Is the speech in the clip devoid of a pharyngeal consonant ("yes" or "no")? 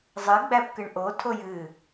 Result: yes